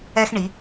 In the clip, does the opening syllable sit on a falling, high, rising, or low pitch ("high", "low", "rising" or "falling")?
high